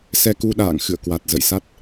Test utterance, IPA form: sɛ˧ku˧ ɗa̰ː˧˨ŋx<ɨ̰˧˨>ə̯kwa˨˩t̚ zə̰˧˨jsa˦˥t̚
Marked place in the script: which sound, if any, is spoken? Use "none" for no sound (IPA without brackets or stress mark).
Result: ɨ̰˧˨